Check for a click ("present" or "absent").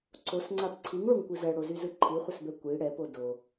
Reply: present